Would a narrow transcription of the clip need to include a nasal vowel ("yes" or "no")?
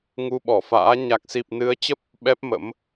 no